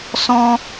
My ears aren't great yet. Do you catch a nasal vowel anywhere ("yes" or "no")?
yes